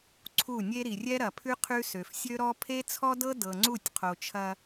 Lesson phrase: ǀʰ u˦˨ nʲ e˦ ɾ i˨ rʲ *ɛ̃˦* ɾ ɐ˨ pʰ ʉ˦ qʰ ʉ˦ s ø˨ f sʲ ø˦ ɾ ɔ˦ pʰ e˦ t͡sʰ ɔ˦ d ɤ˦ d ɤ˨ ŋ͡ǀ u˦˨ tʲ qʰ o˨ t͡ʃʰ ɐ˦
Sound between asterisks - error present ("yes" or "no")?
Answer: yes